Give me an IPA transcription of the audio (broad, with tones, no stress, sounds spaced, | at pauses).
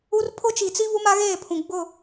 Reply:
u˦ r pʰ ʊ˦ t͡ʃ i˨ t͡s i˦ β u˦ m a˦ ɣ eː˦˨ pʰ ũ˨ ɡ͡b ʊ˦˨